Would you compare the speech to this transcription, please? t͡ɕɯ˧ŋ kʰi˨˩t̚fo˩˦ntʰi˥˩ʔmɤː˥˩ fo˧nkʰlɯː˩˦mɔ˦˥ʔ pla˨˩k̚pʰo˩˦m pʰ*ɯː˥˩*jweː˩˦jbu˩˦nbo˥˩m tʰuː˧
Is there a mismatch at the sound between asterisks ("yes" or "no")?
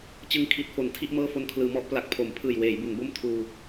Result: yes